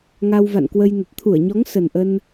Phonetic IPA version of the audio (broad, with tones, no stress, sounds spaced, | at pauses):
ŋ a˧ w v a̰˧˨ n k w ə˧ j n ə˨˩ t̚ t̪ʰ u˧˩ ə̯ ɲ ɔ˨˦ ŋ s ə˨˩ n ʔ ə˧ n